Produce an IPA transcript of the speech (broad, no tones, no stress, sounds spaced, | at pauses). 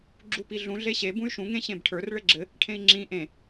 ɡ͡ǁ u p i ɮ ũ ɮ e ɕ e b ũ y̯ ʃ ũ ŋ ẽ ɕ ẽ b ʈʰ ə˞ r ɭ ɘ ɡ͡ǁ ɘ | ʈʰ ẽ i̯ ŋ͡ǁ ĩ ʔ ẽ